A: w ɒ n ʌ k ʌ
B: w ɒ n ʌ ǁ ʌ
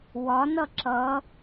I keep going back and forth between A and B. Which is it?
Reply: B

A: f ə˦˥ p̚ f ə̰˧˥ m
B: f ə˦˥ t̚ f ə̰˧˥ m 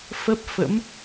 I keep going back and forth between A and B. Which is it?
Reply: A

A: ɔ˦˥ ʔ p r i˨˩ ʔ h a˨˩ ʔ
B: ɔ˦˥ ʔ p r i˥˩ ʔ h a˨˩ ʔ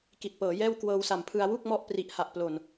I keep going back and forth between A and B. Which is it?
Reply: A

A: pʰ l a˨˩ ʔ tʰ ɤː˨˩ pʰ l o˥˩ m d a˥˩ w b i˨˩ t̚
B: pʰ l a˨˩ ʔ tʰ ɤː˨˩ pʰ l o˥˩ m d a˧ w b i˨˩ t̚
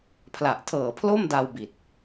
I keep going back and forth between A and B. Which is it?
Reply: B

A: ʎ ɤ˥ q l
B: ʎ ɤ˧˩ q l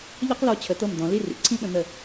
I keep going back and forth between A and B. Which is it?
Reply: A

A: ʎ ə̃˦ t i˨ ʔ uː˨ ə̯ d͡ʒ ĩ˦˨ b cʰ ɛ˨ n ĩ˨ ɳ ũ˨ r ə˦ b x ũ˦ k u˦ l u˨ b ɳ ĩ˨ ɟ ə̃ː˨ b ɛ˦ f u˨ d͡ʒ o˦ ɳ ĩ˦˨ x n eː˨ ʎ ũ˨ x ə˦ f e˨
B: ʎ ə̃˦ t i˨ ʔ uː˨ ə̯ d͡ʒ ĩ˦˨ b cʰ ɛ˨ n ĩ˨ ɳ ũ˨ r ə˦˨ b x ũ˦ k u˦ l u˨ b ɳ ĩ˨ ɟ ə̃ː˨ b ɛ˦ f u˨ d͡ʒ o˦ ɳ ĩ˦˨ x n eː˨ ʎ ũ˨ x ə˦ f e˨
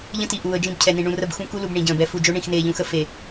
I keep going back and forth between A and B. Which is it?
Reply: B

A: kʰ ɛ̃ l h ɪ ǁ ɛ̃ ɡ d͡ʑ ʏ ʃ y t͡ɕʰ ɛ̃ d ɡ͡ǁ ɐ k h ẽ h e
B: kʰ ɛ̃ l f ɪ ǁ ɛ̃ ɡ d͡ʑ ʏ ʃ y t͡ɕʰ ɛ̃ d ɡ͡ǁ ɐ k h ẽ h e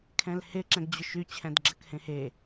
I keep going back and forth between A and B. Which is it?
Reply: A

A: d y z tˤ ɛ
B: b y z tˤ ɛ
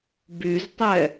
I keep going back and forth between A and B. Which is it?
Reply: B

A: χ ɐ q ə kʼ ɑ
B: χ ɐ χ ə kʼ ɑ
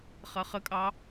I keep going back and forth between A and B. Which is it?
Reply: B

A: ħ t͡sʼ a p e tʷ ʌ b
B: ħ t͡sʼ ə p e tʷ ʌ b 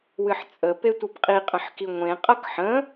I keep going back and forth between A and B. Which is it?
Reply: B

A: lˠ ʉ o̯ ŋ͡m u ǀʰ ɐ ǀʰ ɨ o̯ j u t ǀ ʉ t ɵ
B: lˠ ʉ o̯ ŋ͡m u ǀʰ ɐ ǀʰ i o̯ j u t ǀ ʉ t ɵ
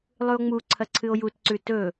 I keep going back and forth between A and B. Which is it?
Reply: A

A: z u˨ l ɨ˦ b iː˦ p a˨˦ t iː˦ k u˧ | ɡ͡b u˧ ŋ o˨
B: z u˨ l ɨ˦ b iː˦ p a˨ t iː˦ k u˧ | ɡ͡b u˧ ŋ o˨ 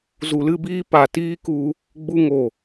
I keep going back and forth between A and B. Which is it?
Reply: B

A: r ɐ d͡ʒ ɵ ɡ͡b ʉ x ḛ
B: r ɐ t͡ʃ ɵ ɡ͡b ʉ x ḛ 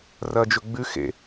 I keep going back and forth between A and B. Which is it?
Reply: A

